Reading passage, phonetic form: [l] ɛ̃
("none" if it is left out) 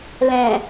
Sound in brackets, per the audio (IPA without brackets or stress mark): l